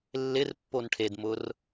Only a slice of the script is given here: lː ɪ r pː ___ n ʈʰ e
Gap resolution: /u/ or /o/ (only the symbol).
o